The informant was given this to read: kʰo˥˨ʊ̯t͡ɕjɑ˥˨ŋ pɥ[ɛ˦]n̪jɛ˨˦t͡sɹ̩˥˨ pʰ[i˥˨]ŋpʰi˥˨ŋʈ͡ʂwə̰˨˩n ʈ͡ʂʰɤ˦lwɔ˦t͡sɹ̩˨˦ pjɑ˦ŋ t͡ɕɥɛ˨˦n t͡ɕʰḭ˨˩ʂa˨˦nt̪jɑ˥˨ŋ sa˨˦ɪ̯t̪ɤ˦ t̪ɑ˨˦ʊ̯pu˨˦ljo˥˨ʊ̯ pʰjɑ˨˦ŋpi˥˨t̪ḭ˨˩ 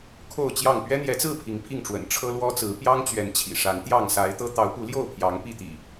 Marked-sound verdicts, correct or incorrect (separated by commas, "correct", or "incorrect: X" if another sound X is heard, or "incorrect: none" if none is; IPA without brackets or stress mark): correct, incorrect: i˨˦